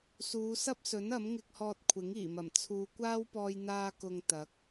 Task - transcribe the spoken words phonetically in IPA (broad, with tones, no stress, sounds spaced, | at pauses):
s uː˨˧ s ɐ˥ p̚ s ɵ˨˥ n ɐ˨˥ m ŋ ɪ˧ k̚ h ɔː˧ t̚ kʷʰ ɪ˨˥ ŋ iː˨˩ m ɐ˨˩ m t͡sʰ uː˨˧ kʷ aː˥ w p ɔː˧ j n̪ aː˧ k ʊ˨ ŋ t̪ ɐ˨˥ k̚